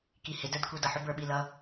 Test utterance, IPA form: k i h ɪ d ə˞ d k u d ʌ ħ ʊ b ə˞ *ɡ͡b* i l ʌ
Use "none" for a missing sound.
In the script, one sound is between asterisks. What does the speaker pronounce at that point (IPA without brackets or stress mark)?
ɓ